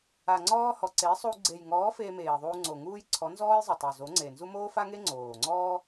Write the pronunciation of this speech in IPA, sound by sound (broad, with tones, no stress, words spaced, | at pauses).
a˨ ŋ͡ǀɔː˦hɔ˨ ǀe˨˦sˤu˧ ɡ͡ǀe˨jŋɔː˨˦ feː˧meː˨ ðˤuː˧ŋ͡ǀo˨ ŋuː˦j ǀʰɔ˨˦nzɔː˦jzˤɘ˨tˤo˨ zo˨˦ŋ͡ǀe˨nzu˦ moː˦fa˦ŋe˦ ŋ͡ǀoː˨ŋ͡ǀɔː˦